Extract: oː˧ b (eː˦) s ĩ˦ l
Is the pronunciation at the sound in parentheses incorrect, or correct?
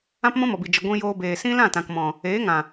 incorrect